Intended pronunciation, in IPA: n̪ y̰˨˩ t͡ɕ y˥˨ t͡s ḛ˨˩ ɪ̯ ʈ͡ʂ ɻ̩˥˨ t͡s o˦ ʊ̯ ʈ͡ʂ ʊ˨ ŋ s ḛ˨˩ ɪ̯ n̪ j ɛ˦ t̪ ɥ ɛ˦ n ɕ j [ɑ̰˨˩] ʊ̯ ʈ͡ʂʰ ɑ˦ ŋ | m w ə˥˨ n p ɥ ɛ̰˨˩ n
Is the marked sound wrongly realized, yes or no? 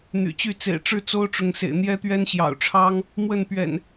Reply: no